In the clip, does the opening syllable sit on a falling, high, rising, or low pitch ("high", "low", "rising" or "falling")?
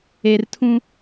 low